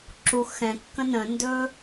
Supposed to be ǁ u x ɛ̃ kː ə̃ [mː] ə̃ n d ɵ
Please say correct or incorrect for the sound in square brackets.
incorrect